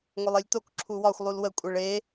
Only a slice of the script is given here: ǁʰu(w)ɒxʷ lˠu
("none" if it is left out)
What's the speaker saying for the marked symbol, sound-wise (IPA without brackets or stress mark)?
w